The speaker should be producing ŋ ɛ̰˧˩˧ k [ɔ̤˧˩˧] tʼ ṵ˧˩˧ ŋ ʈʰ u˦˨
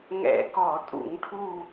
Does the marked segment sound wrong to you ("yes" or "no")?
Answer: yes